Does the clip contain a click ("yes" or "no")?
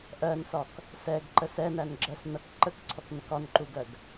yes